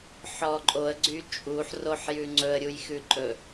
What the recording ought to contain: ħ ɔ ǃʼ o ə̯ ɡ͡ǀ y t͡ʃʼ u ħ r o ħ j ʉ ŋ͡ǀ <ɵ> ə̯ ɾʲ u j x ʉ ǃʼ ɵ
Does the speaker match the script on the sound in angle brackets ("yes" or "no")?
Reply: yes